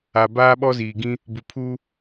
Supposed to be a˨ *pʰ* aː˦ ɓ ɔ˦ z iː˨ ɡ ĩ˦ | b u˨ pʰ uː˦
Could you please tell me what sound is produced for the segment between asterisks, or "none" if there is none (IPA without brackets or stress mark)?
b